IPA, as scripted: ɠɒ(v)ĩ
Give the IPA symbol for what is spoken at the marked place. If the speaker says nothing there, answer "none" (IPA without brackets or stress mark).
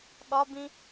b